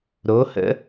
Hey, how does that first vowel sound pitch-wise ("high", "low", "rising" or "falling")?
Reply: rising